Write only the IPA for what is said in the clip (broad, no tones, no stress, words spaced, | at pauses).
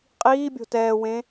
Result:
qʼiːbʲo̤ tɛːwẽ